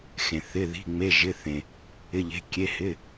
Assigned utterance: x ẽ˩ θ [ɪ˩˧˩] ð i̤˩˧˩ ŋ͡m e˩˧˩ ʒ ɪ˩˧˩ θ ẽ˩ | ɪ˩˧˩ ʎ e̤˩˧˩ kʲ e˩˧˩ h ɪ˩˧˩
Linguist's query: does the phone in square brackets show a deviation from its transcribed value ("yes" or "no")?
no